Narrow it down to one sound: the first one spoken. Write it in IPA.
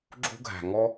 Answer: ɡ͡ǁ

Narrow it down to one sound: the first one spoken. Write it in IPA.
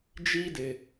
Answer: d͡ʒ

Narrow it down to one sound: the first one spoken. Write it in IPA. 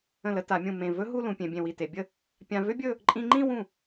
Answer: ə̃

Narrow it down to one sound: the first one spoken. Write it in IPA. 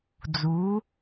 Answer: d͡z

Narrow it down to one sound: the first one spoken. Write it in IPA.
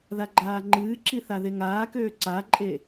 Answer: ð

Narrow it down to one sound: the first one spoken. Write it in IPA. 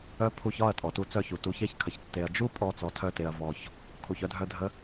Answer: œ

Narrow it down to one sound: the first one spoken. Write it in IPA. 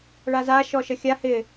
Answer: ɭ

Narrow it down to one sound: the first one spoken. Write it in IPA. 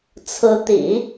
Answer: t͡sʰ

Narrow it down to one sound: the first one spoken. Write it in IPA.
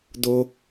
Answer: d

